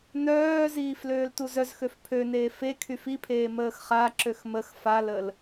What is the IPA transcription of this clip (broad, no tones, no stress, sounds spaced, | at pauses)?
n œː z iː f l øː l t u z œ z x ø f pʰ ø n eː f e kʰ y f i pʰ eː m əː x χ a ǁ ø x m ə x f a l ə l